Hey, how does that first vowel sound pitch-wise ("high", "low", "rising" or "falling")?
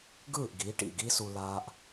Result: falling